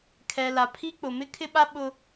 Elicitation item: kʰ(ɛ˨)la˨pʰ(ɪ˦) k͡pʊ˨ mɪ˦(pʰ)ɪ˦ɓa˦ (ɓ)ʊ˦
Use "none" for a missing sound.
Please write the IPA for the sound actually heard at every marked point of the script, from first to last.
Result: ɛ˨, i˦, kʰ, ɓ

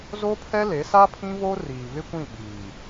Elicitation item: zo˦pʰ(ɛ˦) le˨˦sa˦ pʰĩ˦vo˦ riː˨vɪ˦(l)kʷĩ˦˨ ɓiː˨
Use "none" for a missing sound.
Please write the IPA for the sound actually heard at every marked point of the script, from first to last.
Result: ɛ˦, none

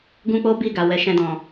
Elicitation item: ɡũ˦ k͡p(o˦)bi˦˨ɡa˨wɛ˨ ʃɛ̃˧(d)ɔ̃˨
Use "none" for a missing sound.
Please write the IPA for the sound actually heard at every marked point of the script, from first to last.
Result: o˦, d

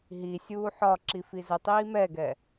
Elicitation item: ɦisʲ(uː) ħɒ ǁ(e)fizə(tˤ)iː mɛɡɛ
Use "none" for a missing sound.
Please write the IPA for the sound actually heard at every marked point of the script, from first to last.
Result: uː, i, tˤ

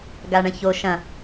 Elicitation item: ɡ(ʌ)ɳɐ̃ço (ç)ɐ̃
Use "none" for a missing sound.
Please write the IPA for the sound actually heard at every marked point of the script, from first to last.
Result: a, ʃ

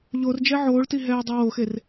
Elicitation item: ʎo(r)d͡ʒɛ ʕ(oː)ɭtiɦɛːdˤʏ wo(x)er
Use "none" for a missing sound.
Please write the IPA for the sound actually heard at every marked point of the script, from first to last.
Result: r, oː, x

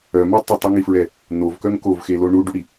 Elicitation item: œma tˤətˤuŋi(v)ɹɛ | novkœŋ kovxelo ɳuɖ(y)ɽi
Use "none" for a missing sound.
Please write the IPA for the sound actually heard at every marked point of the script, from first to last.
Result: f, y

